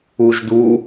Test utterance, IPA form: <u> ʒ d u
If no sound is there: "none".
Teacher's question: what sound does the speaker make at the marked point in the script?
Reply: u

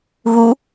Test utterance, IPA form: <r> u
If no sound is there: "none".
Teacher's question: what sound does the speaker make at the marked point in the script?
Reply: ɣ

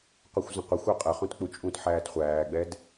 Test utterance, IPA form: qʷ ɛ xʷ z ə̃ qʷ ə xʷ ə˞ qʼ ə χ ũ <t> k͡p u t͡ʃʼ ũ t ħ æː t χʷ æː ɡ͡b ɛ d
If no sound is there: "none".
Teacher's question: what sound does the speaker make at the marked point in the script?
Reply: t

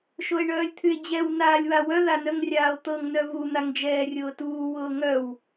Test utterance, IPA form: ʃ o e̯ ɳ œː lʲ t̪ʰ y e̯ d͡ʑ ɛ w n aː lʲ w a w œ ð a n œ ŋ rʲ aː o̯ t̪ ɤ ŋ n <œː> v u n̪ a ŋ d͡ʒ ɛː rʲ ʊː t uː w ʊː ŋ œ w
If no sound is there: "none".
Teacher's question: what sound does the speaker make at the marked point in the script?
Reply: œ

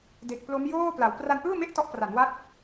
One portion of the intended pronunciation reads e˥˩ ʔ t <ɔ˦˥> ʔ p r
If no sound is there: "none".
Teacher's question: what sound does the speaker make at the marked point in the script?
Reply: ɔ˦˥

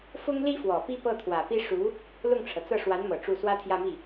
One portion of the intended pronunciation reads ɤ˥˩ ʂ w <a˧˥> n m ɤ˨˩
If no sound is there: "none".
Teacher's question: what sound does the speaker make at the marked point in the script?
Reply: a˧˥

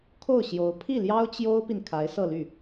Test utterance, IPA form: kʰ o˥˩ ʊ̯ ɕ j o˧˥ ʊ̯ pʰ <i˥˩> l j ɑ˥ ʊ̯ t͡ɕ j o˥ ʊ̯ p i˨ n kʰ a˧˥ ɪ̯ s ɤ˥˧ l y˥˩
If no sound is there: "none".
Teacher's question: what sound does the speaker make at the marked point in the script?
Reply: i˥˩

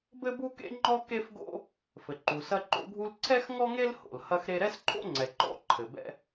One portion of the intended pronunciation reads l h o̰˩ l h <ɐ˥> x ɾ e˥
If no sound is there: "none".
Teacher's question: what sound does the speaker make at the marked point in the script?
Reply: ɐ˥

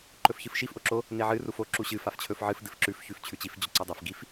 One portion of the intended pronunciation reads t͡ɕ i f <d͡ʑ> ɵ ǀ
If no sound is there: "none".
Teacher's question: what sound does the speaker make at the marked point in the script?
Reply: d͡ʑ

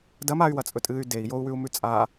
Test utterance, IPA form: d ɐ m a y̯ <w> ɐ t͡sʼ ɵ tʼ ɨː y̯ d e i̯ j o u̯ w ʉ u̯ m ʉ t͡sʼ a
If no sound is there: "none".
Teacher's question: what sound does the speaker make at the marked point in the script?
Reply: w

